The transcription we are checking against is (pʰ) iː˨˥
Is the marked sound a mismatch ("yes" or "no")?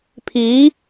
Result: no